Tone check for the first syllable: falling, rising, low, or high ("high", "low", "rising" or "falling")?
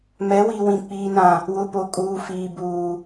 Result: rising